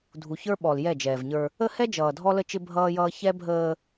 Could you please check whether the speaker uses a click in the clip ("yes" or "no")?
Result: no